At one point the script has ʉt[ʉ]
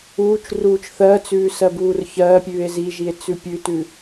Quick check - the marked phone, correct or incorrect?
correct